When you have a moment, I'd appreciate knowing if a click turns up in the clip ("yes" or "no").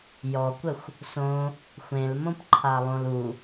yes